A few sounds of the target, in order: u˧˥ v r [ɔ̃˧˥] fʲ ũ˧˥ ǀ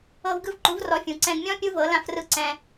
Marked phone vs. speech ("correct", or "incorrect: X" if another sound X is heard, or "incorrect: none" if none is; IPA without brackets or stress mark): incorrect: ɔ˧˥